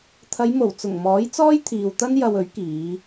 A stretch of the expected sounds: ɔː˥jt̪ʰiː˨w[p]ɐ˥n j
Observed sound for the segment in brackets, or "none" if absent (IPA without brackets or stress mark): t̪